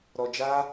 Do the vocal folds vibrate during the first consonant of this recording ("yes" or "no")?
yes